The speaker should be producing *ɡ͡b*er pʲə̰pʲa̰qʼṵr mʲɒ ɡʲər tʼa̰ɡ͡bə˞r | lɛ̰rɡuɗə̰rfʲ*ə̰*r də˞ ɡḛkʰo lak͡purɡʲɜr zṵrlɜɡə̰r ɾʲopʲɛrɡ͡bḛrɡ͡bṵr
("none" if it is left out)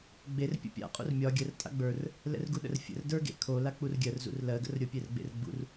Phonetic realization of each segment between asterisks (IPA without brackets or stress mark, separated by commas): ɡ͡b, ə̰